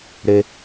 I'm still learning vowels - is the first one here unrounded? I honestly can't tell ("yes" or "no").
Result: yes